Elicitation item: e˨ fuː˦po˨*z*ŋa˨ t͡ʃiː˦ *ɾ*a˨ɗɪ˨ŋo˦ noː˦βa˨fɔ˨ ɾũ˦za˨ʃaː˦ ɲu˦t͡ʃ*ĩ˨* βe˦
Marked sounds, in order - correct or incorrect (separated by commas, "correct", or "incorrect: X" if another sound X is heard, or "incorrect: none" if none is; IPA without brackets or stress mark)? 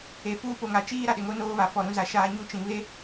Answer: incorrect: none, correct, correct